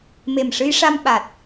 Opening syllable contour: low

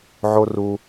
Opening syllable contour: high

